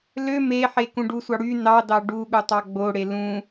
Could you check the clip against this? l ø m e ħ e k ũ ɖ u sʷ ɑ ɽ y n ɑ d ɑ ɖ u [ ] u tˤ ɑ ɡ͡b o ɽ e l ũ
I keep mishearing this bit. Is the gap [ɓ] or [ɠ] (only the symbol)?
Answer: ɠ